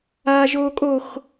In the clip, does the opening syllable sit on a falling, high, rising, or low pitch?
high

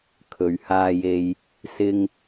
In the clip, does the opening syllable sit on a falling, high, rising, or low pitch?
low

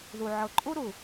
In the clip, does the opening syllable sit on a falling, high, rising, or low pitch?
low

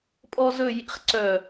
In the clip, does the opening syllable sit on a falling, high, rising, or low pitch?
high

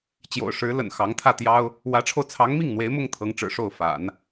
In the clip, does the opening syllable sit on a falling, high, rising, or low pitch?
low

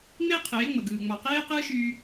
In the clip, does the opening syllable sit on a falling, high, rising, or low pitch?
high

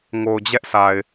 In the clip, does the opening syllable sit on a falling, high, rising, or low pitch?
low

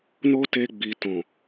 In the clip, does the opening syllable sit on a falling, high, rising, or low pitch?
high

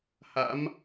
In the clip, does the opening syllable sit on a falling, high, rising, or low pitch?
rising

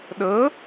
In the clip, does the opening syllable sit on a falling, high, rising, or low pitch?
rising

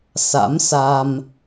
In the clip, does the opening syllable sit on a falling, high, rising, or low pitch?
rising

